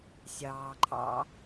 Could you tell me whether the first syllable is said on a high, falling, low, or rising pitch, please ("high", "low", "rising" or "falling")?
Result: low